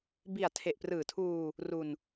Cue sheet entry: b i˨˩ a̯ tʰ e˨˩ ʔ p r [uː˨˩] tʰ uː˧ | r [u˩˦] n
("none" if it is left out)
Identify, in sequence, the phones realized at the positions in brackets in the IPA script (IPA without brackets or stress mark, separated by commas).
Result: ɯː˨˩, u˧